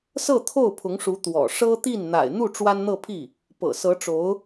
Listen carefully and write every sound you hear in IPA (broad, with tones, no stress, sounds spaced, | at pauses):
s ɤ˥˧ t̪ʰ o˥˩ ʊ̯ pʰ ʊ˧˥ ŋ ʂ u˧˥ t̪ w ɔ̰˨˩ ʂ ɤ˥ t̪ i˥˩ n n̪ a̰˨˩ ɪ̯ n̪ u˥˩ ʈ͡ʂ w a˥ n n̪ ɤ˥˧ pʰ i˥˩ | p ɤ̰˨˩ s ɤ˧˥ ʈ͡ʂ o˧˥ ʊ̯